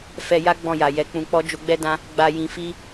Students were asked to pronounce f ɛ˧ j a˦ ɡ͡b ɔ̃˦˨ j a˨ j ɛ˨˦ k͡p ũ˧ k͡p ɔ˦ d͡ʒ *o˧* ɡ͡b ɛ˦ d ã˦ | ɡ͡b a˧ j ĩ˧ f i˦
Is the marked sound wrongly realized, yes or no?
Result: no